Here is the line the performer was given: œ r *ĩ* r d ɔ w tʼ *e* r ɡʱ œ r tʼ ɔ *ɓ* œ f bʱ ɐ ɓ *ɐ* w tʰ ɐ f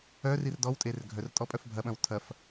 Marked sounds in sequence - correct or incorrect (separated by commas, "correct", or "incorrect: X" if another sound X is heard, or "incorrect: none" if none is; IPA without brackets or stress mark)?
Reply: incorrect: i, correct, incorrect: pʼ, incorrect: ɐ̃